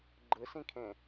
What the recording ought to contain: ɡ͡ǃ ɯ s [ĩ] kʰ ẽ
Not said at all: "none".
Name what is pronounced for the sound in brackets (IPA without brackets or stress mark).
ĩ